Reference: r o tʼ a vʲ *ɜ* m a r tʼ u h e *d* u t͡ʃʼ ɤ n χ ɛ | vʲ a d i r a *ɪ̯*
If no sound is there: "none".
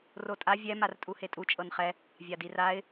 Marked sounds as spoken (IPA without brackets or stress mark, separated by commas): ɛ, tʼ, ɪ̯